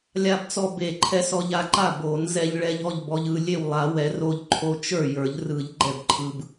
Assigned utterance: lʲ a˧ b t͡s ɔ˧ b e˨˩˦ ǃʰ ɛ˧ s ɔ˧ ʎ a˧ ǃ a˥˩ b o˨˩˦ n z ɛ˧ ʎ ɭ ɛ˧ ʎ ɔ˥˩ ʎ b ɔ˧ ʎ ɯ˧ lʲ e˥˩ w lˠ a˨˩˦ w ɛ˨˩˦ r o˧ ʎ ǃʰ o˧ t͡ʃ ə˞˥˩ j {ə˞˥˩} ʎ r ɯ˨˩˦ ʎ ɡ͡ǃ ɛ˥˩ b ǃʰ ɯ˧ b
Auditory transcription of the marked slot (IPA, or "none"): ə˞˨˩˦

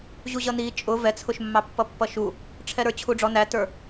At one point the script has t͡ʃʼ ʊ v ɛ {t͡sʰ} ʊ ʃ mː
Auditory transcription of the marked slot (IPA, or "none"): t͡sʰ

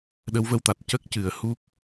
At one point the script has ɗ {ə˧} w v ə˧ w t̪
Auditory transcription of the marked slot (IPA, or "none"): ə˧˥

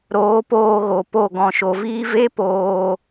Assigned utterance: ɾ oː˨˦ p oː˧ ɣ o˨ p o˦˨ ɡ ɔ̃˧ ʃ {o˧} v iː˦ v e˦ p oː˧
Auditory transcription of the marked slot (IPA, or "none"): o˧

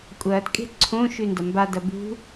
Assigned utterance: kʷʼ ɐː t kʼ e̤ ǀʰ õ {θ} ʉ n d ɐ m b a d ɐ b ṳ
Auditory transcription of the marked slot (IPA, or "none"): ʃ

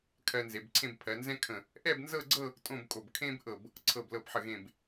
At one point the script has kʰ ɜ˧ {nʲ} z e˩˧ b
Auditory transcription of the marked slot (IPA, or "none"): n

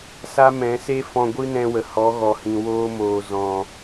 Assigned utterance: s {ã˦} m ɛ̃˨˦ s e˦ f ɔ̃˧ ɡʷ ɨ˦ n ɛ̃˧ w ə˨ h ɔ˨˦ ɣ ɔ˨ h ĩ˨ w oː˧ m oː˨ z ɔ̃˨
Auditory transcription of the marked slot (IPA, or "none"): a˦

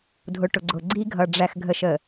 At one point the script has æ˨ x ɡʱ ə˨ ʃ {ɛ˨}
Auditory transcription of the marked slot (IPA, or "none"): ə˨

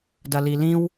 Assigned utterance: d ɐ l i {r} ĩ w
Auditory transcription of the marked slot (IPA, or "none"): l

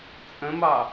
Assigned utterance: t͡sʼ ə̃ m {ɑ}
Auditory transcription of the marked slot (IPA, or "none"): ɑ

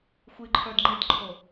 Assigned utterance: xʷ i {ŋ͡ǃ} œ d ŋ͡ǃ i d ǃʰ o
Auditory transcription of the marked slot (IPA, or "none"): ǃʰ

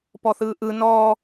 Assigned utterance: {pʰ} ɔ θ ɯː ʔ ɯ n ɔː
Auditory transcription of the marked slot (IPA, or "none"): p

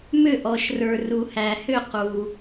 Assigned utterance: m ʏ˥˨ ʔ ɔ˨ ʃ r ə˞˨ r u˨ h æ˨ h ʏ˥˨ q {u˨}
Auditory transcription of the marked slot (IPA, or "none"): u˨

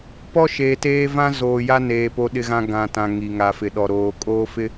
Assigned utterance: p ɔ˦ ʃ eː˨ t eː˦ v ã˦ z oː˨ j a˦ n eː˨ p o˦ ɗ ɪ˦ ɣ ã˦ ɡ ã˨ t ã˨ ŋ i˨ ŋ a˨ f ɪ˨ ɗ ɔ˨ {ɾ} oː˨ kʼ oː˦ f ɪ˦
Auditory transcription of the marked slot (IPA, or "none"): ɾ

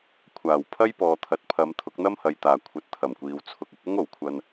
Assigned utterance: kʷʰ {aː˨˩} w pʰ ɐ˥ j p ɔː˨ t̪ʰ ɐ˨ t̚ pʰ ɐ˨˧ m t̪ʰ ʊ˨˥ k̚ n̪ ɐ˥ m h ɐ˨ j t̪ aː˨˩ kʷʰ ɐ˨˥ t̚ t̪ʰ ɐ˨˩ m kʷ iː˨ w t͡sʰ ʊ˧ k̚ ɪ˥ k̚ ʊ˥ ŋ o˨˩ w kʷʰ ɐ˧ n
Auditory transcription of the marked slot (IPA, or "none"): aː˨˩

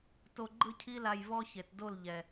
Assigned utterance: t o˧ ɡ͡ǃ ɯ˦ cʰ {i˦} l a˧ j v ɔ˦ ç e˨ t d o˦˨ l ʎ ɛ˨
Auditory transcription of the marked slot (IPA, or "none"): i˦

